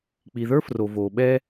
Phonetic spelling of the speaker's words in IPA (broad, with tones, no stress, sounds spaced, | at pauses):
k͡p i˨ ð ə˞˦ f r o˨ v oː˨ ɓ ɛ˦